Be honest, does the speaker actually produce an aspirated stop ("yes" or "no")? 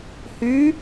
no